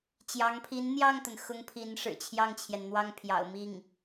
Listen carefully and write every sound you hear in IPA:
t͡ɕjɑ˧˥ŋpʰi˧˥nn̪jɑ˥˩ŋt̪ə˩n xʊ˥ŋpʰi˧˥n ʂɻ̩˨˩t͡ɕʰjɑ˥˩ŋt͡ɕʰjɛ˩n n̪wɑ˥˩ŋpʰjɑ̰˨˩ʊ̯mi˥˩ŋ

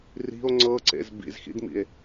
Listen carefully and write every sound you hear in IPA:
ri̤o̯ ŋ͡ǀɤǀḛz bḭzxḭdmḭe̯

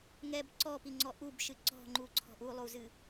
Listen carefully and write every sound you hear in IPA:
ŋɛb ǀɔpiŋ͡ǀɔ ʔubʃɨ ǀɔ̤ŋ͡ǃuǀʰɔ̤ʔ ulˠuzɨ

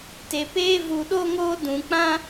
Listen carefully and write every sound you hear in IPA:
te˧peː˦vu˧ɗo˦ ŋoː˦dũ˧k͡pã˦

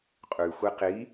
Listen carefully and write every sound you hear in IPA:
qʼʉ xʷiqi

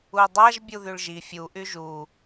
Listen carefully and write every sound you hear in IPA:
udˤaʒ bʲuðyɭʒi fʲu ʔyʒu

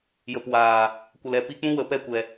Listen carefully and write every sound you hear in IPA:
jə˨pwaː˨ | kʷə˨lɛ˨ pi˧k͡pũ˦wə˨ pɛ˦˨kʷɛ˨

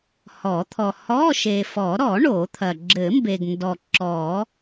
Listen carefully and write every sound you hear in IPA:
hɔ˨˩˦t̪ʰɔ˨ hɔ˧˥˧ʃe˨fɔ˨˩˦ ɾɔ˨˩˦ ɳo˨˩˦t̪ʰɐ˨ ɡ͡ǁɘ˨˩˦mbe˨ɡndɔ˨ ǁɔ˨˩˦

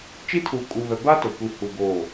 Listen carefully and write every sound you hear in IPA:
t͡ʃi˦tʰuː˨kʼu˨βɛ˨ ba˦ to˨kʷi˨ hu˨ ɡoː˨

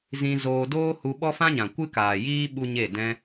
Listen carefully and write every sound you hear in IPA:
zĩ˧ zoː˧ doː˦hu˧ ɓɔ˦fã˦ɲã˨ kʷɨ˦kaː˨jiː˦ ɓu˦ɲe˦˨ dɛ̃˧

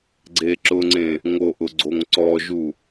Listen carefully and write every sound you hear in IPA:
ɡ͡ǀeǁʊŋ͡ǀẽ | ŋoʔʊ ɡ͡ǀoŋǀɔʒu

